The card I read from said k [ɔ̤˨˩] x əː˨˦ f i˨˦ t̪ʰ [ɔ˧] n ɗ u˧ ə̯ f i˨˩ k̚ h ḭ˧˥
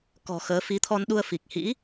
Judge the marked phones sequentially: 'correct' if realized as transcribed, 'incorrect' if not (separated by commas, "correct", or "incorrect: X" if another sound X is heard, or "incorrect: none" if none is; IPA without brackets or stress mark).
correct, correct